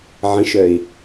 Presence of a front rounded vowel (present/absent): present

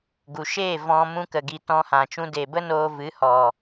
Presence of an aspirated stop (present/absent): absent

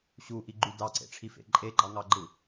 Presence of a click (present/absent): present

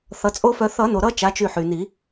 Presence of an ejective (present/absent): present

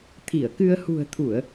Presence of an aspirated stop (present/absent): present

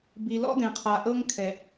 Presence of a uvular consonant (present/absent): present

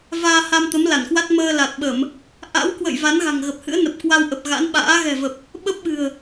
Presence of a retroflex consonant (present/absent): absent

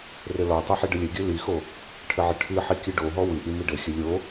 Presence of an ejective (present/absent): absent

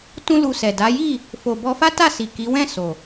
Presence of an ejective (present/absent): absent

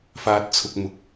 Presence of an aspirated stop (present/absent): present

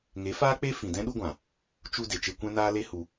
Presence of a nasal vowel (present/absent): present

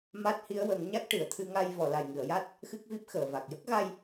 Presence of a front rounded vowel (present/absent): absent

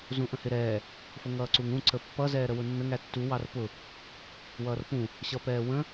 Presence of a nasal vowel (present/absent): present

